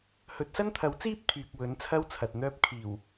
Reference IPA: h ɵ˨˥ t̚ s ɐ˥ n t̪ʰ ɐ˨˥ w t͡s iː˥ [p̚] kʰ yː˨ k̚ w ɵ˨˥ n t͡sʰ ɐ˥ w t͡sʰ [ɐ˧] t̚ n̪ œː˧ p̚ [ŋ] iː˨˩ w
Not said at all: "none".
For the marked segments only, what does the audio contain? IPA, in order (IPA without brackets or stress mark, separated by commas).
p̚, ɐ˨, kʰ